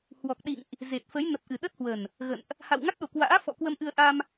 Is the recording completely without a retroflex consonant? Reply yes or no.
yes